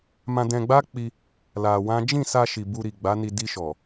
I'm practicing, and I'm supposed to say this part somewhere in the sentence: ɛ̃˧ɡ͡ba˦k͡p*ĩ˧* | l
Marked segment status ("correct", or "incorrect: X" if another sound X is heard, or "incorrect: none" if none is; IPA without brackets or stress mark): incorrect: i˧